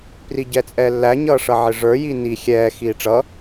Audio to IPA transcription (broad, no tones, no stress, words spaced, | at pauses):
priɟɛt͡sʼɛːlːæ ɲʌːʂʌʕɪʐə˞ jini xʲɛː xiːʈ͡ʂʌ